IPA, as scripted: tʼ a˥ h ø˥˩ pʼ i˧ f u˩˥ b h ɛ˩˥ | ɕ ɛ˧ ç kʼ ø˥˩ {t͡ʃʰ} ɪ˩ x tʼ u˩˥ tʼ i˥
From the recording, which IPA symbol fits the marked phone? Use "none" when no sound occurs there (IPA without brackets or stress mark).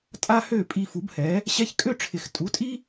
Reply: ʈ͡ʂʰ